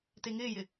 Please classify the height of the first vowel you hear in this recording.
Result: mid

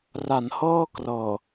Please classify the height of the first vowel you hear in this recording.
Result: low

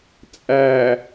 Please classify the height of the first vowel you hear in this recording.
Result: low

